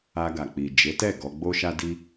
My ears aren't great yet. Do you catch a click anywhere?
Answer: no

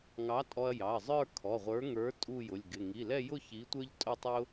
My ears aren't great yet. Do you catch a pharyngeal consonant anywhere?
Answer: no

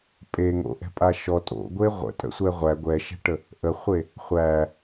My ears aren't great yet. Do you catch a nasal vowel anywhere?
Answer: no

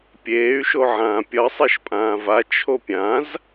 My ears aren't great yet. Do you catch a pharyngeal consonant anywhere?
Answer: yes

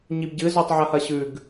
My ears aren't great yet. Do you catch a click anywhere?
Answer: no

